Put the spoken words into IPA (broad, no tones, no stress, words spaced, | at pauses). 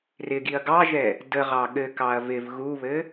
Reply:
rɪɡiɐ̯ ɡɑʒɛ | də ʁɑɠɘkɑɐ̯ vɪv ɣuβɘ